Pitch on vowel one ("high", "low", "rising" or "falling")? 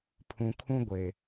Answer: low